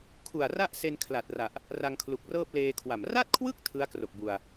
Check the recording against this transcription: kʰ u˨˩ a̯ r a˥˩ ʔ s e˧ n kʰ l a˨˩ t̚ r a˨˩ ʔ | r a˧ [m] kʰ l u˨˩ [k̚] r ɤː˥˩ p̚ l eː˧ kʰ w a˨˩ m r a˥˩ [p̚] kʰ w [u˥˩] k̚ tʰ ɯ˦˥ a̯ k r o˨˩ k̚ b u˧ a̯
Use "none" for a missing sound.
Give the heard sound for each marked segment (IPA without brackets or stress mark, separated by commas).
ŋ, k̚, t̚, ɯ˥˩